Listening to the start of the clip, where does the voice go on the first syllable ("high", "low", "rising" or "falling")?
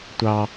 high